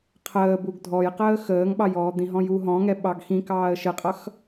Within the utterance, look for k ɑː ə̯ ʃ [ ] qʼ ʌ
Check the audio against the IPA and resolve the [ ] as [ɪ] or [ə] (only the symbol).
ɪ